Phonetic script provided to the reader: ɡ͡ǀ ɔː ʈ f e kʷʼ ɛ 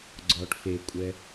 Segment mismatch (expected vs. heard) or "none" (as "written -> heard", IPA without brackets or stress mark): none